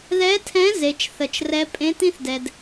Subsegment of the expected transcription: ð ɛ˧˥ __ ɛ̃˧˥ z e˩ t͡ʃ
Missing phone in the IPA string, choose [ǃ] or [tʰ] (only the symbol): tʰ